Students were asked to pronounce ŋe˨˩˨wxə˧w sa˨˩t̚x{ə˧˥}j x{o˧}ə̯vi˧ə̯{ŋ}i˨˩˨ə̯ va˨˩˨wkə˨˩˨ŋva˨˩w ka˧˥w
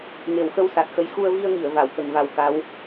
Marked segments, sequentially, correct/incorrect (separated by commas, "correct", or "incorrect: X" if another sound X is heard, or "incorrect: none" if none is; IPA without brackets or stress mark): correct, incorrect: u˧, correct